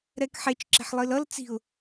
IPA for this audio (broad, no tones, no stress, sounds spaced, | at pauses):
ɾ ɛ k ħ e t͡ʃ ǁ e̤ ħ lˠ i l ʌ l t͡s i̤ ʊ̯